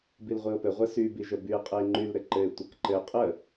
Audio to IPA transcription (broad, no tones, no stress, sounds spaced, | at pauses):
b i l ʁʷ i o̯ p ɘ ʁʷ ɘ s y b i ʒ ə b y e̯ qʼ ɘ e̯ ŋ͡ǃ y l ɾ ɘ ǃ ɘ e̯ tʷ ə k ǃ ɘ qʼ ə